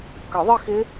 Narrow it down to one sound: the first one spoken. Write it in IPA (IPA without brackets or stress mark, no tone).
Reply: k